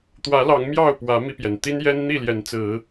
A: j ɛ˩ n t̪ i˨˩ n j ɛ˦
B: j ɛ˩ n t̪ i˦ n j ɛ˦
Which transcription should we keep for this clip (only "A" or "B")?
B